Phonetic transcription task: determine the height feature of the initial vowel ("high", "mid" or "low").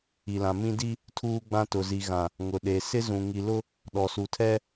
high